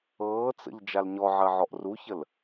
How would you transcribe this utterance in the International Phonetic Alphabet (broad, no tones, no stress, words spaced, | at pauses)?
ɤːt͡sə̰ʎ d͡ʒalɲɔʕɜ ʕɔʔruçəl